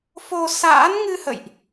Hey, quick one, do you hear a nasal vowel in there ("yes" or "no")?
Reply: no